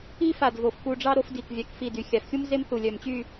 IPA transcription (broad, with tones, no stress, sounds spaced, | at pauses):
i˥ f a˧˩ d v o˧˩ f k u˧ ɖ͡ʐ ɑ˥ ɾ o˥ f d i˧˩ k vʲ a˧ k f i˧˩ d y˩˧ xʲ a˩˧ f xʲ u˥ m z e˥ m θ u˧˩ lʲ œ˧˩ m t͡ɕ y˥˧